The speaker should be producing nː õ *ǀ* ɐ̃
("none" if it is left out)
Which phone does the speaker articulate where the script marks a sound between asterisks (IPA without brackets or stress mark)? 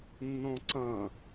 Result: ǀ